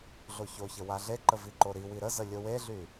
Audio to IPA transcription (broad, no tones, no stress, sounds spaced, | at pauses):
ɮ o ç o ç ə w a ɮ e ǃ ə v i ǃ o ɾ i w i ɾ ə z ə lʲ o w e ɮ y